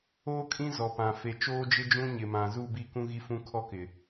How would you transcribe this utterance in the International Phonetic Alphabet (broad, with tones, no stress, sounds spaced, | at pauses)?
oː˦ kʼ ĩ˦ z ɔ˨ p ã˨ f e˨ t͡ʃ oː˦ d͡ʒ ɪ˦ d͡ʒ ũ˦ ɲ ɪ˨ m ã˨ z u˦˨ b i˦˨ k ũ˦ ɣ i˦ f ũ˦ kʰ ɔ˦ k ɪ˨